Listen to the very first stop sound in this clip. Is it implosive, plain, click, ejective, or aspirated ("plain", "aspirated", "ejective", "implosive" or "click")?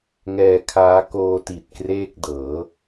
aspirated